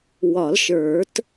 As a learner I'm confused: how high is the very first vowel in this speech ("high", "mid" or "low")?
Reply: low